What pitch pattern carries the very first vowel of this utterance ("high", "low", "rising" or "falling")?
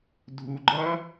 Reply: low